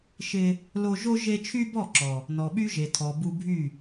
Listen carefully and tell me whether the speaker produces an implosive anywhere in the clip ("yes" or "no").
yes